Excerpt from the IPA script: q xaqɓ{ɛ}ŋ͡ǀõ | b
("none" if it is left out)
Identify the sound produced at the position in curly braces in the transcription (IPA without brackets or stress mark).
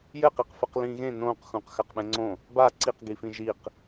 ɛ̃